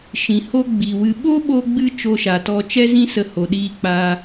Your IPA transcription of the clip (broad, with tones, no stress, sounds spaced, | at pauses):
ʃ ĩ˨ h o˦ ɡ͡b i˨ w ɨ˧ ɓ o˦ ɓ o˧ ɡ͡b ɨ˧ t͡ʃ o˧ ʃ a˨ t ɔ˧ t͡ʃ ɛ˦ z ĩ˦ s ə˧ h o˨ ɗ iː˧ k͡p a˧